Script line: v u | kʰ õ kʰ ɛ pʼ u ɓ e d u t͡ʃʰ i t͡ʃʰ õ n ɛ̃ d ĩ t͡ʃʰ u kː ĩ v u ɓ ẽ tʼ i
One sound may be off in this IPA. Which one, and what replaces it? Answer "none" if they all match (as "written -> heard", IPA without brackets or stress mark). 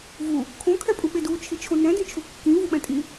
ẽ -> ɛ̃